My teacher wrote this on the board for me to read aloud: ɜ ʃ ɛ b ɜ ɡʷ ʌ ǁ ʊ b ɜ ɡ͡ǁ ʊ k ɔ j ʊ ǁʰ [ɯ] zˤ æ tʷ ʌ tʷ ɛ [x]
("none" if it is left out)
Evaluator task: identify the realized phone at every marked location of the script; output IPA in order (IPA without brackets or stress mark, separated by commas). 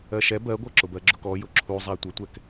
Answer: u, k